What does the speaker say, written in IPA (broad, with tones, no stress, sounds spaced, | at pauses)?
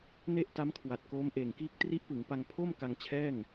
n e˥˩ ʔ t a˦˥ m kʰ w a˨˩ t̚ k oː˦˥ m ʔ eː˨˩ ŋ k iː˥˩ k̚ t r i˦˥ ʔ p ɯ˩˦ ŋ p a˧ ŋ pʰ o˥˩ m k a˧ ŋ t͡ɕʰ ɛː˥˩ ŋ